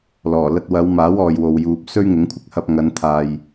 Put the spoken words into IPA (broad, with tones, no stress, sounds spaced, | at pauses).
l ɔː˨˩ l ɐ˧ t̚ w ɐ˨˧ w m aː˨˥ w ɔː˨ j w o˨ w j uː˨ p̚ s ɵ˥ ɥ ŋ ɪ˨˥ ŋ kʷʰ ɪ˥ k̚ h ɐ˧ p̚ ŋ ɐ˨˧ n t̪ʰ aː˨ j